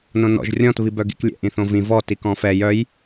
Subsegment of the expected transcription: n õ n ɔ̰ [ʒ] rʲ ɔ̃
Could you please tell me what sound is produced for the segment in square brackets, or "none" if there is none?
ʒ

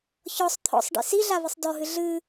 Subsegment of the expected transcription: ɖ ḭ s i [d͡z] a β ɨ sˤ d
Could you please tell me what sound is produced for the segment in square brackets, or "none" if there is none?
ɮ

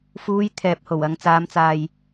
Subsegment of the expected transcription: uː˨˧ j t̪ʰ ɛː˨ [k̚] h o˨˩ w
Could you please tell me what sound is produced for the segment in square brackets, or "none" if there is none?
p̚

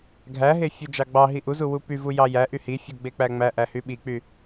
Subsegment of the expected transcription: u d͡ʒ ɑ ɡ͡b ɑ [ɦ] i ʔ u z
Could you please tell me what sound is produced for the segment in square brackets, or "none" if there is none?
ɦ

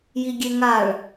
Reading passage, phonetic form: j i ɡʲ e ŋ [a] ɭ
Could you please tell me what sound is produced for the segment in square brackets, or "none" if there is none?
a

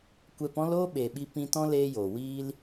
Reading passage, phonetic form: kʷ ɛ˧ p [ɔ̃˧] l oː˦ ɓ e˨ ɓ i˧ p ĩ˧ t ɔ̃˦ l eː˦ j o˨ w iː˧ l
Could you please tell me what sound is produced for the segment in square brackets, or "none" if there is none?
ɔ̃˦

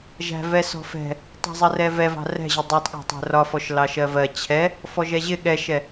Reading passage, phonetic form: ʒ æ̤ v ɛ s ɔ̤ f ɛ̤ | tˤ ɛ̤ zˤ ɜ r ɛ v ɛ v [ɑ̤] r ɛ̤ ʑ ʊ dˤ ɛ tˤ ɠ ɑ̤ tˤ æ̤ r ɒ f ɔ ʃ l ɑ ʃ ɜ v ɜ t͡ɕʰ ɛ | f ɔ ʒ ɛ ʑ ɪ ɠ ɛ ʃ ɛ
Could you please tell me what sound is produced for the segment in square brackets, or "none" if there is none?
ɑ̤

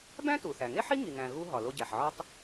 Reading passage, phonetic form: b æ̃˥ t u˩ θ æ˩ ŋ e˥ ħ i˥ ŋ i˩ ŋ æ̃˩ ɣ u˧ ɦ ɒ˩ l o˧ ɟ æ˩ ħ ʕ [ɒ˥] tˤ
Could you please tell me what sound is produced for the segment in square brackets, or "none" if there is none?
ɒ˥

